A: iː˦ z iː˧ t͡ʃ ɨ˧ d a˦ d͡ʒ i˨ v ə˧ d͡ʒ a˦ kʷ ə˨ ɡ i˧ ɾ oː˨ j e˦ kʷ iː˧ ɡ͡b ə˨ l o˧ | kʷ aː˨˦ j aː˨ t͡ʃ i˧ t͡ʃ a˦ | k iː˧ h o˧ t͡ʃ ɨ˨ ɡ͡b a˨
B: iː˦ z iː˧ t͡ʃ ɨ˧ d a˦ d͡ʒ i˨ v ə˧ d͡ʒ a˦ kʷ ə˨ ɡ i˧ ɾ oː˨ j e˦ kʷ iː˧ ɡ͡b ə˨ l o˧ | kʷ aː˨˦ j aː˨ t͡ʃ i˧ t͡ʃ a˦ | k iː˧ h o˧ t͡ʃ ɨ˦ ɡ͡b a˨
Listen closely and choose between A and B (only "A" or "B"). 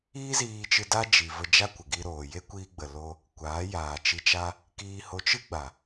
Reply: B